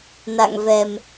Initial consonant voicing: voiced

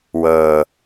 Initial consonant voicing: voiced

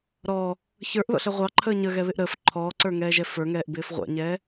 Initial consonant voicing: voiced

